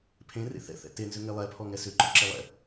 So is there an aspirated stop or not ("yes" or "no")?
yes